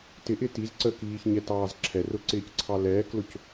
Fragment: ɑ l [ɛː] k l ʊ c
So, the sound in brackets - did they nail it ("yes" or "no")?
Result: yes